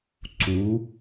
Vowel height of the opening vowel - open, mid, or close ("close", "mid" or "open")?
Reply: close